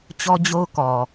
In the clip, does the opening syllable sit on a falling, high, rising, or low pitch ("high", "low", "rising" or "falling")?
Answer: high